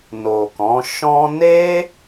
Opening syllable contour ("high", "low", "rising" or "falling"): low